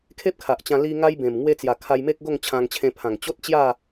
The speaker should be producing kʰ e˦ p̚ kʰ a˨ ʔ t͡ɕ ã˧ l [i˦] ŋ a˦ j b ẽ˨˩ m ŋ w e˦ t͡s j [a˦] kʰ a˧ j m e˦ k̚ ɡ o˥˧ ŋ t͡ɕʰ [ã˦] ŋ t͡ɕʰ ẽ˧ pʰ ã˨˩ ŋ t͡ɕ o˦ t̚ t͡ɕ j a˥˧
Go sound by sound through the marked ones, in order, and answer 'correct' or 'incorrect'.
incorrect: i˧, incorrect: a˨˩, incorrect: ã˧

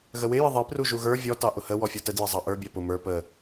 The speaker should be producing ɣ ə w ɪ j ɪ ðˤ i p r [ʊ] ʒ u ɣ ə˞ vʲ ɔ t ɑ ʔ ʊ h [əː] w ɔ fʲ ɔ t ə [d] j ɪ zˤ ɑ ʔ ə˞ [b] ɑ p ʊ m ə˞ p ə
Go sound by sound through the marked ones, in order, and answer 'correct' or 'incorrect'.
incorrect: u, incorrect: ə, correct, incorrect: bʲ

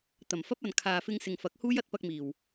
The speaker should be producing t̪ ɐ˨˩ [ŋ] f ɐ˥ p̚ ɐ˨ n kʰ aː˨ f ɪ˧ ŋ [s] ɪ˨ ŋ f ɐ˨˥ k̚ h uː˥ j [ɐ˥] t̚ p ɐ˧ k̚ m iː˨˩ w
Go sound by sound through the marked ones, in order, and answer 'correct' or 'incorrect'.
incorrect: m, correct, correct

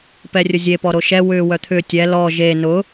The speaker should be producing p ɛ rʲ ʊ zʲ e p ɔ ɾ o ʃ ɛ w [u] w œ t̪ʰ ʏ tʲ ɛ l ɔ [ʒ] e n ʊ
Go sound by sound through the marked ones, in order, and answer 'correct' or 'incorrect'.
incorrect: ʏ, correct

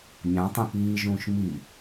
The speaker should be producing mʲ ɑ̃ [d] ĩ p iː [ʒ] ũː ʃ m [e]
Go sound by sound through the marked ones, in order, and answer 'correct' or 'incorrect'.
incorrect: tˤ, correct, incorrect: i

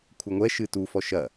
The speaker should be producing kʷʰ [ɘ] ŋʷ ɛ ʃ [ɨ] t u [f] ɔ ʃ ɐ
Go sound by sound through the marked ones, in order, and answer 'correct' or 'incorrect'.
correct, correct, correct

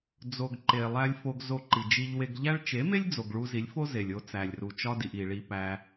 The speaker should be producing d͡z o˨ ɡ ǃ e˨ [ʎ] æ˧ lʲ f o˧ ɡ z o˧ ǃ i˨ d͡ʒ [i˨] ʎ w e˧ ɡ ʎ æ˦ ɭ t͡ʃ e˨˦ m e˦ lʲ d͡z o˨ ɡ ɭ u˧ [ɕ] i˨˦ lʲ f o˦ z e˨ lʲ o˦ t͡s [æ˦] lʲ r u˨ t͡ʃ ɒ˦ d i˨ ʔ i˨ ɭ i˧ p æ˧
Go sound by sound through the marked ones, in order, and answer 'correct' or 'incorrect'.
incorrect: lˠ, incorrect: i˧, incorrect: z, incorrect: æ˨

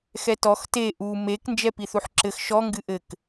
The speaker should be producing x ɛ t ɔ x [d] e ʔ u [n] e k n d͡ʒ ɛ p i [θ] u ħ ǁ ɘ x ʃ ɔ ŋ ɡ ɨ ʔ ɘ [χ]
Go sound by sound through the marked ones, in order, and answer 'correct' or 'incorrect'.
incorrect: t, incorrect: m, correct, incorrect: k

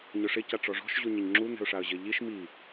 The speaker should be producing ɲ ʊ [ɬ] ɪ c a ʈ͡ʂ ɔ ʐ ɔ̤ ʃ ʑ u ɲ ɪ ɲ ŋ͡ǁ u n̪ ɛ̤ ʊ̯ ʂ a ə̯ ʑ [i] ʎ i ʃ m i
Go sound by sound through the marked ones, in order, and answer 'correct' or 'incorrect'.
incorrect: ʂ, incorrect: ɪ

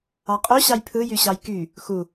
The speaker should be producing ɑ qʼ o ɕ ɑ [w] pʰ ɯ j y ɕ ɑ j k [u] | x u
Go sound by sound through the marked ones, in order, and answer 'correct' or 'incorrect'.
incorrect: j, incorrect: y

